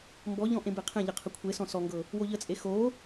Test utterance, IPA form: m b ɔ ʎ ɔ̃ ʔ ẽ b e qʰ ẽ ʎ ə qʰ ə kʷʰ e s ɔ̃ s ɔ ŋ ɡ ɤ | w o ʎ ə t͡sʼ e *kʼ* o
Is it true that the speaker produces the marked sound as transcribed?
no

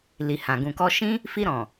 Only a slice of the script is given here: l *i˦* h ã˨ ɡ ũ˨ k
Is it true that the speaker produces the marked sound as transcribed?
no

